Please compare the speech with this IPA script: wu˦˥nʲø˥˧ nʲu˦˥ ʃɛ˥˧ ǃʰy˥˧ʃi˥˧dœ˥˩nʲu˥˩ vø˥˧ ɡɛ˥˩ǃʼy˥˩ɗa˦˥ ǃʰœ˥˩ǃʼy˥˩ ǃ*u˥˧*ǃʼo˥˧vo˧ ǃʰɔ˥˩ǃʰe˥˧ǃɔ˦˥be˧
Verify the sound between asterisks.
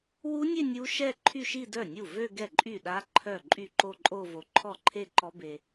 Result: incorrect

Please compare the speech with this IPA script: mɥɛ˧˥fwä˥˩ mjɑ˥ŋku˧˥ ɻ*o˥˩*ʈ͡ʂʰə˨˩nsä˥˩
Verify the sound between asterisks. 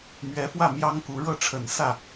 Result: incorrect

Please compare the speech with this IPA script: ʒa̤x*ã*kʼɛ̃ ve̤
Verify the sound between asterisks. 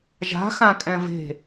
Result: correct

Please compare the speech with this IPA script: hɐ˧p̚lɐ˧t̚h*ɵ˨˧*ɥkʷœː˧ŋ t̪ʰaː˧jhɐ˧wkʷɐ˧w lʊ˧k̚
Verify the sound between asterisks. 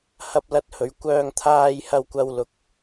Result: correct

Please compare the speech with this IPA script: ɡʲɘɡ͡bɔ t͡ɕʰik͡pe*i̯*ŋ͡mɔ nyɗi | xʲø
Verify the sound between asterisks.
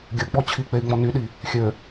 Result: correct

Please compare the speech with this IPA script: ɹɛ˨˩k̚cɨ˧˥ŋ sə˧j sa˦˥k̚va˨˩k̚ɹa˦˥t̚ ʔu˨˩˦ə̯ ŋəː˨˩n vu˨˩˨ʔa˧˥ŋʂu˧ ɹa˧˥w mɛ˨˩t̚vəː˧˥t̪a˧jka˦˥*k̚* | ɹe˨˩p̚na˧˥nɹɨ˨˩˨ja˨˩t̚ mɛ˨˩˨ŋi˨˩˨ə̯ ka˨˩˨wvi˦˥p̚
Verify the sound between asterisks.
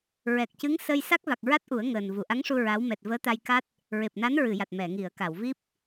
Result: incorrect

